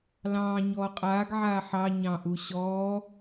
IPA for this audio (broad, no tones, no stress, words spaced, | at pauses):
lɑ̃ː ɲɔːqʼaːɡʕaː ħɑ ɲɑ̃ʔu ɕɔː